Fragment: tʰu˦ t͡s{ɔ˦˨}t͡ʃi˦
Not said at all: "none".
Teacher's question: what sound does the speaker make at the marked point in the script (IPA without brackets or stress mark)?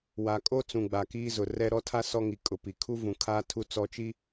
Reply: ɔ˦